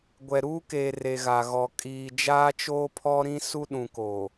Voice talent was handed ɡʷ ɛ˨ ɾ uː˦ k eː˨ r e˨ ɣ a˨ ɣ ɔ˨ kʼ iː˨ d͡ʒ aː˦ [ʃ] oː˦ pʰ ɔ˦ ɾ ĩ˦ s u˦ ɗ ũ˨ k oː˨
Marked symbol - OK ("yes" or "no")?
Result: no